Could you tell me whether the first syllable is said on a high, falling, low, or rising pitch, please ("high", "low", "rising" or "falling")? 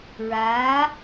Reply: rising